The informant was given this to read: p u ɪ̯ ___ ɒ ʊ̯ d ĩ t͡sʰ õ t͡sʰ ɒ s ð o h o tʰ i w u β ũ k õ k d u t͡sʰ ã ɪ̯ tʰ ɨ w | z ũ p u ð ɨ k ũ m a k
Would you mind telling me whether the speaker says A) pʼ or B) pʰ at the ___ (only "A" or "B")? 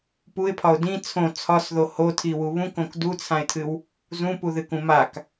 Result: B